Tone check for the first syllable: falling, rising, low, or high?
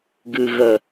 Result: low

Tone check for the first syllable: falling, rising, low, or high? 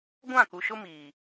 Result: falling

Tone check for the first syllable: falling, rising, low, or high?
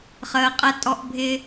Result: low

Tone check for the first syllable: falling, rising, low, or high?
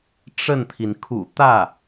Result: falling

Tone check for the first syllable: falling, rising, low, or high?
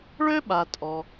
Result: high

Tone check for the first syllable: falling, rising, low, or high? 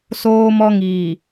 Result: high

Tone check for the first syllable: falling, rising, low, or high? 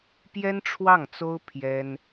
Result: high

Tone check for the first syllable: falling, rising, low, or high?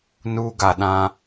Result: high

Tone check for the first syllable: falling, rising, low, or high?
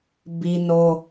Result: high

